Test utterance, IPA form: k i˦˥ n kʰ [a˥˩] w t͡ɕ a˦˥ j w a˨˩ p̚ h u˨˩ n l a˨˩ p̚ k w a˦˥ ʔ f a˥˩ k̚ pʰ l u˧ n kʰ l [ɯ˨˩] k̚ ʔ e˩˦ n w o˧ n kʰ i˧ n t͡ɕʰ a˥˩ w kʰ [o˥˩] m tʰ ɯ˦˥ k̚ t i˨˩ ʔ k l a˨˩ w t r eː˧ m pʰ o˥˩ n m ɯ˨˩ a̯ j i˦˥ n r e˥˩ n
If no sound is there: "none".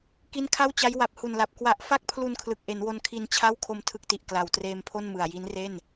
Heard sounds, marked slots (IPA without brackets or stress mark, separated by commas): a˥˩, ɯ˨˩, o˧